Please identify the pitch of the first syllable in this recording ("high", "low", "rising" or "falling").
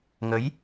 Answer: rising